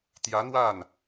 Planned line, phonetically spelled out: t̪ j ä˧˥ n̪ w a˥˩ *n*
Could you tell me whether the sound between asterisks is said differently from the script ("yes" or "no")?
no